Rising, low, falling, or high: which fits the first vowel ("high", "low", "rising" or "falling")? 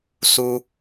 high